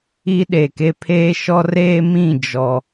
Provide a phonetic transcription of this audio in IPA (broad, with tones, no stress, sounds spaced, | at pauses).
i˦ ɗ e˨ k e˦ pʰ eː˦ ʃ ɔ˦ r eː˦ m ĩ˦˨ d͡ʒ ɔ˦